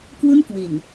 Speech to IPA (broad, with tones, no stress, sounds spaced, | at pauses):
k w u˥˩ n k w i˨˩ n